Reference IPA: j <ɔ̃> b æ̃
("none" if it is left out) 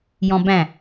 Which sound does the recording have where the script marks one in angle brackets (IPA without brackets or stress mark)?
ɔ̃